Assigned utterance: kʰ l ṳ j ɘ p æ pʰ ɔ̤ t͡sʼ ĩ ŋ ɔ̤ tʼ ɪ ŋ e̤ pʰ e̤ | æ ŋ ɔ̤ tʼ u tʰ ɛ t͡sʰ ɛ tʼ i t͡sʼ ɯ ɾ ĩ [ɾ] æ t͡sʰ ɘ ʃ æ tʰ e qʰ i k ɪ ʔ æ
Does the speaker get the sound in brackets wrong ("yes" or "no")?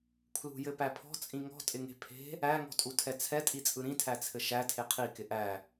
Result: yes